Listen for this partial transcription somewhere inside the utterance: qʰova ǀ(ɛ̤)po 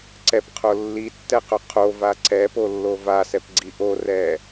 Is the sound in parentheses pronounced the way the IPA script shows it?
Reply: no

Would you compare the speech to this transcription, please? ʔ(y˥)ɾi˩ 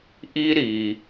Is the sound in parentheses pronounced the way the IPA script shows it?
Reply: no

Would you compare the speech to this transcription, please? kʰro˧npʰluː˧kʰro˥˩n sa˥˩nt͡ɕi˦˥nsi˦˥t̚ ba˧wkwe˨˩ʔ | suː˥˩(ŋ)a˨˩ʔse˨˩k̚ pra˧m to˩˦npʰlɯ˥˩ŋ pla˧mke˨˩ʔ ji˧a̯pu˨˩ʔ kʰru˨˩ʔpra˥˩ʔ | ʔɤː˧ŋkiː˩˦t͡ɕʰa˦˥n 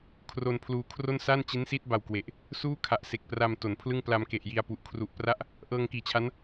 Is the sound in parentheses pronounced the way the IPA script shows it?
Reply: no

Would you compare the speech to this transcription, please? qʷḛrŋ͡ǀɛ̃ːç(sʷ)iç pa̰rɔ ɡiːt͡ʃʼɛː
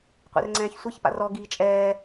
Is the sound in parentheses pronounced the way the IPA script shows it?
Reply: yes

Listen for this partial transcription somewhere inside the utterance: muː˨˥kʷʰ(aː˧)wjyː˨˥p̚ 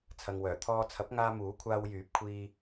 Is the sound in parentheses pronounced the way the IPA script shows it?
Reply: yes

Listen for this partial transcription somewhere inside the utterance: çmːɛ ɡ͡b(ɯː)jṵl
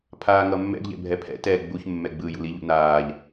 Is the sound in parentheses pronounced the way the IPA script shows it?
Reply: yes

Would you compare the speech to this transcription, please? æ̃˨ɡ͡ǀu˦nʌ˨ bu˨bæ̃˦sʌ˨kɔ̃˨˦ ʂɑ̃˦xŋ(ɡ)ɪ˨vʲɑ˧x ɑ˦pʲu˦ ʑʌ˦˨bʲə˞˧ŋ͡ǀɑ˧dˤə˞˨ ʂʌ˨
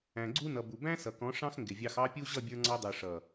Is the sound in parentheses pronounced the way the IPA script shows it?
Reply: yes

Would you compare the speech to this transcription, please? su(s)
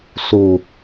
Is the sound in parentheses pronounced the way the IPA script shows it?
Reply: no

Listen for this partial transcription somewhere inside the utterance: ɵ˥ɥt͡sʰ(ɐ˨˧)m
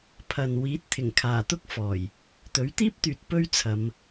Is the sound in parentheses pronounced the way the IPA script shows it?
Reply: yes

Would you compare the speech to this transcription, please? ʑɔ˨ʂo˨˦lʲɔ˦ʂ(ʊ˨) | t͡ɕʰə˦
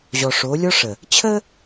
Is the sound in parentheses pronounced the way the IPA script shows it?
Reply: no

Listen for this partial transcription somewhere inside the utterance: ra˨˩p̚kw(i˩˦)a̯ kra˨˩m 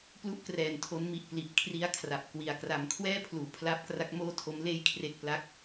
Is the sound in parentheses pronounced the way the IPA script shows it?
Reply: no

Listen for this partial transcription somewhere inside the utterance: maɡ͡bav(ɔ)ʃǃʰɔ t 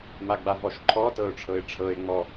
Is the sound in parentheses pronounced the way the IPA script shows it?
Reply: yes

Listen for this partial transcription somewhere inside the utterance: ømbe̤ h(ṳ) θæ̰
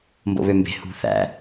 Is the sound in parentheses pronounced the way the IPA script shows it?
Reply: yes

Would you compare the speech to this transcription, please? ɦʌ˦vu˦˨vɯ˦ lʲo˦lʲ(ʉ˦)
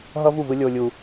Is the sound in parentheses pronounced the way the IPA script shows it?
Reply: no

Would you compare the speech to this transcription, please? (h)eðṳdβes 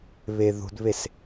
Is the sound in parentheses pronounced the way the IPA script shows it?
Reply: no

